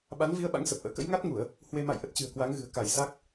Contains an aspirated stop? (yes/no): no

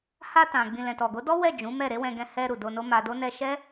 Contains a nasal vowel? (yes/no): yes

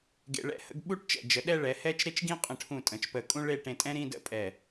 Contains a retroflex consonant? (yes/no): yes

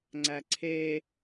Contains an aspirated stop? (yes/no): yes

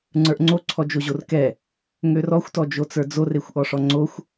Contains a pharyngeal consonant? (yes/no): no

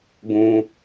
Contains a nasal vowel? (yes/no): yes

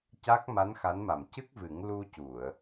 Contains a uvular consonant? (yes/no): no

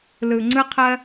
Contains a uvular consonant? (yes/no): yes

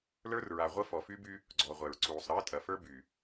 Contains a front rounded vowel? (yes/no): yes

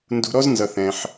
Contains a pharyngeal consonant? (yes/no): yes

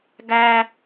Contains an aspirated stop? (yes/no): no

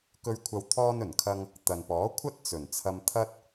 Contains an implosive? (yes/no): no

